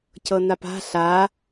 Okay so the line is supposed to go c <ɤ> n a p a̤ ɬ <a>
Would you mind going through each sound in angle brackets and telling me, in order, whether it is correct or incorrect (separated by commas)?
correct, correct